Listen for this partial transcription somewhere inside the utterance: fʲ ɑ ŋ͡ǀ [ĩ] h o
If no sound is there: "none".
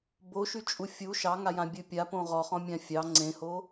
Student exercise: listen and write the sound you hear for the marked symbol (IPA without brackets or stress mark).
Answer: ẽ